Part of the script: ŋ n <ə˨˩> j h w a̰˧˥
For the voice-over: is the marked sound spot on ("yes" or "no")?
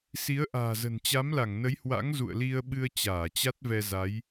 no